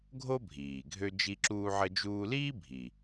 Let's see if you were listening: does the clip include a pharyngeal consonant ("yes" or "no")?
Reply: yes